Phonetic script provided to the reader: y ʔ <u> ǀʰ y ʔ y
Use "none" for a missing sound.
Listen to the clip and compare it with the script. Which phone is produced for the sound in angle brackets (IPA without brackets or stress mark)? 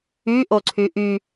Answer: o